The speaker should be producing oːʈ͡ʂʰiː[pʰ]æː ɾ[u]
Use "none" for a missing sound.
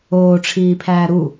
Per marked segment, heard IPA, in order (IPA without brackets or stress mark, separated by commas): pʰ, u